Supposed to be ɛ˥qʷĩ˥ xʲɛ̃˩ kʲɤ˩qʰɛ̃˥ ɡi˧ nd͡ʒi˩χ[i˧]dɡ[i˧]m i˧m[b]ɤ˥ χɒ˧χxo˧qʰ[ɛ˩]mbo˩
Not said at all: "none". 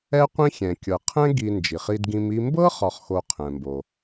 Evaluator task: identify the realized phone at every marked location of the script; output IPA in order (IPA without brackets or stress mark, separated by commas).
i˧, ĩ˧, b, ɛ̃˩